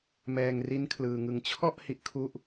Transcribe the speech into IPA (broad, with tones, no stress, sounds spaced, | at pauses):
m ɛː˧ ŋ r i˦˥ n kʰ l ɯː˧ ŋ ɯ˧ ŋ t͡ɕʰ ɔ˥˩ ʔ h i˥˩ ʔ kʰ u˥˩ ʔ